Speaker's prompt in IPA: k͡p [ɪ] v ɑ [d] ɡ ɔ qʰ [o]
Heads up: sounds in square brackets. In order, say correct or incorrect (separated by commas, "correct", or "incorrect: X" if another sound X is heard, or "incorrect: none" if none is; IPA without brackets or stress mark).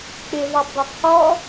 correct, incorrect: b, incorrect: ɔ